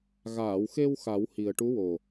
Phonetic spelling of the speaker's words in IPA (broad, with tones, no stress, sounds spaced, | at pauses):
ɣ aː˨˩˨ w x e˧ w x a˨˩˦ w h i˨˩ ə̯ ʈ u˧˥ w o˨˩